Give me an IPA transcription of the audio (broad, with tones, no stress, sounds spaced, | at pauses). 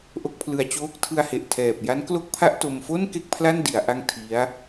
ʔ o˦˥ k̚ pʰ l ɯ˧ a̯ t͡ɕ oː˦˥ k̚ tʰ ɯ˧ a̯ h e˨˩ ʔ tʰ ɛː˨˩ p̚ j a˦˥ n k l o˥˩ k̚ pʰ a˥˩ ʔ t o˧ m f o˥˩ n k e˥˩ k̚ pʰ l a˥˩ n d i˩˦ a̯ ʔ a˦˥ ŋ tʰ i˦˥ a̯